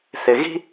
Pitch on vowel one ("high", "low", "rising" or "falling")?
low